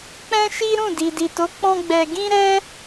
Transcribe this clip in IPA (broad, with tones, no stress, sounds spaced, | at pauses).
k͡p ɛ̃˦ ʃ i˦ ɾ ũ˦˨ d i˨ d i˨ t o˨˦ k͡p ɔ̃˦ ɡ͡b ɛ˧ ɡ ĩ˦ ɾ ɛ˦